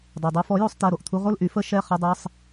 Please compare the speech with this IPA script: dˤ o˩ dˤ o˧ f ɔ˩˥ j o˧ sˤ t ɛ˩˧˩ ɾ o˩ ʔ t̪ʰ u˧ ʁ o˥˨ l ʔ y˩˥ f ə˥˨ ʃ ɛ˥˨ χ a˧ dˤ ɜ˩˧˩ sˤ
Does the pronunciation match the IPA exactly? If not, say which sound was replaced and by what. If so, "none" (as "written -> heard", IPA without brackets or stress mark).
none